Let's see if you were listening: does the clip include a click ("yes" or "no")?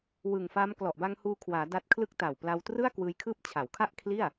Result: no